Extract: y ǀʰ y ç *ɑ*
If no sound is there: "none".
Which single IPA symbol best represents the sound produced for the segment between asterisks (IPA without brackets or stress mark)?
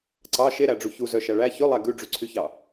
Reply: ɑ